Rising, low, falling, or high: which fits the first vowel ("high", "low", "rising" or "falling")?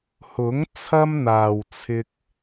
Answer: rising